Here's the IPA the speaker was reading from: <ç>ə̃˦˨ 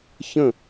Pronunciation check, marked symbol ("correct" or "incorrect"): correct